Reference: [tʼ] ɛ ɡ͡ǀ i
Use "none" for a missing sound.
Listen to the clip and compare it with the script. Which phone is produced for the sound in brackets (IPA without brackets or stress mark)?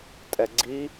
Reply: tʼ